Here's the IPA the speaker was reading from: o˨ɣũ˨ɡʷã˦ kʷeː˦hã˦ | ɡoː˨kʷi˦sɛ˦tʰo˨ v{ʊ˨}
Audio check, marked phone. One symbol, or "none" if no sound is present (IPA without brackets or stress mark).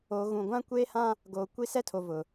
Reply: ʊ˨